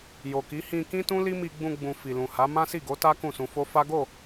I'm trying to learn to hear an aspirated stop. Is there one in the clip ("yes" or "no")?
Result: no